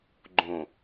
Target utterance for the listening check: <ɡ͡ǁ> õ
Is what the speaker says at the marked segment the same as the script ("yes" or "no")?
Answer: no